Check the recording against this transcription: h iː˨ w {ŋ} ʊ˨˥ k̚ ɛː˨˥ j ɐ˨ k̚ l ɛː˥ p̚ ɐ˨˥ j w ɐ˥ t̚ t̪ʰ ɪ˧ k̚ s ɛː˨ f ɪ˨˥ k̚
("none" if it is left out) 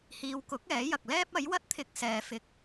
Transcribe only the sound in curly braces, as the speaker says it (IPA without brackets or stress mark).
k